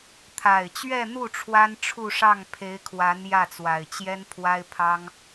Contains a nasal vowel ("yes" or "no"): no